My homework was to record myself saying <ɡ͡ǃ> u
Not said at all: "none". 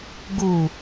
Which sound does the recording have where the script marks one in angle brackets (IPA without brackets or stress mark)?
ɡ